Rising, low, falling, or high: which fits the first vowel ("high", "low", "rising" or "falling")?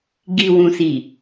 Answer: low